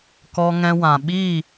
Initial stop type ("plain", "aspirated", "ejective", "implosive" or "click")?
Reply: plain